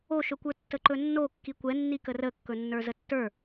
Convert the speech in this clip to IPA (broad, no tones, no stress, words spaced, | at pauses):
oʃɵkʷə˞ tːəǃɵnːo kːikʷɛnːikə rəkːɵnːə˞ zətːə˞